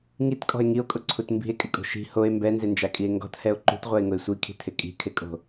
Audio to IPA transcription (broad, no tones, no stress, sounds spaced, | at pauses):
ŋ i t kʼ ɔ̤ e̯ ŋ i o̯ kʼ ʊ ǀʰ u t m b i̤ e̯ kʼ ɪ kʼ o̤ ʃ i̤ h o e̯ m b ɛ n z ɪ n d͡ʒ a kʼ i e̯ ŋ ɡ ɔ̤ t h ɛ o̯ ǃ ṳ t ʁʷ ɛ e̯ ŋ ʊ e̯ sʷ i kʰ i̤ tʰ ɪ kʼ i̤ kʰ ɪ kʼ o̤